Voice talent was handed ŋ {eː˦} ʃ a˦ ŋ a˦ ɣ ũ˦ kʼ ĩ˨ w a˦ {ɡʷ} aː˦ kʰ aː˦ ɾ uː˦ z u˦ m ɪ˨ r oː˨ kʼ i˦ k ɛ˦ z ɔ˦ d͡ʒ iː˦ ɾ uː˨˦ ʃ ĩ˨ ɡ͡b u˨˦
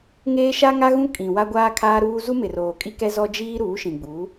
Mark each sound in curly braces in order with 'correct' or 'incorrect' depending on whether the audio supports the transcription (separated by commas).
correct, correct